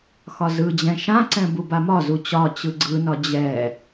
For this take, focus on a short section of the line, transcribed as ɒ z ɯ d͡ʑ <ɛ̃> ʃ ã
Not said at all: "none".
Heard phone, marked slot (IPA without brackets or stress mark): ɛ̃